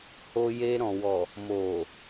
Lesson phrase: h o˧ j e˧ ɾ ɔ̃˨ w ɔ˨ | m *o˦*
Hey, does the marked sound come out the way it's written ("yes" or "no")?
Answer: no